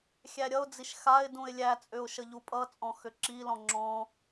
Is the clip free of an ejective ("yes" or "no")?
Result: no